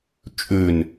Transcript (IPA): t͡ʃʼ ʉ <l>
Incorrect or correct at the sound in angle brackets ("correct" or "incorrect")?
incorrect